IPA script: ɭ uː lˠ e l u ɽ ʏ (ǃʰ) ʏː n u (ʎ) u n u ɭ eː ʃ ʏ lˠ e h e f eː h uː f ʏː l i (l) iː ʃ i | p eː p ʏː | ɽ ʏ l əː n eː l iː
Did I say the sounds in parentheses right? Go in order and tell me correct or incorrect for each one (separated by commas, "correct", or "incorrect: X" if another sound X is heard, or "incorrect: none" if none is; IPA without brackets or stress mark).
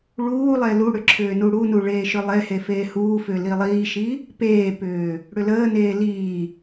incorrect: ǁʰ, incorrect: ɽ, incorrect: lˠ